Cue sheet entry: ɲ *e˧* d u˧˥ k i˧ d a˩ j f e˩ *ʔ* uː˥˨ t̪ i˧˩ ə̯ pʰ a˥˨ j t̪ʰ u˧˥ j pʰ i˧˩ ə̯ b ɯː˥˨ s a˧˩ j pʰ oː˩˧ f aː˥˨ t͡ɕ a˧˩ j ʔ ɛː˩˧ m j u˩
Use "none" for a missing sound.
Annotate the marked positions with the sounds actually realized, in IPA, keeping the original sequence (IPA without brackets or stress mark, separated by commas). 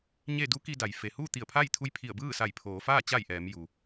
e˥˨, h